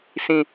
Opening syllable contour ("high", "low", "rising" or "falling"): low